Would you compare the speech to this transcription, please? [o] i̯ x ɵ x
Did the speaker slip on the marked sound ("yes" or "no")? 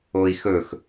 no